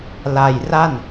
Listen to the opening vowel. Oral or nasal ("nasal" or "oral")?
oral